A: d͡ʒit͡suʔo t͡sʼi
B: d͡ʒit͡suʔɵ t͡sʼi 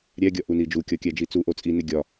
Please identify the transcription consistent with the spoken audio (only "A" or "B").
A